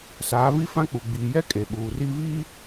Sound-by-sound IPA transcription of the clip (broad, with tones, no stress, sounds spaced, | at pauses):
s aː˨˦ v i˦ f ã˦ k͡p u˨ ɡ͡b iː˨ j ɛ˦ kʼ e˨ ɓ uː˨ r i˦ v iː˦